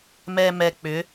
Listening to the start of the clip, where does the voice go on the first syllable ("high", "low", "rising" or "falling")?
low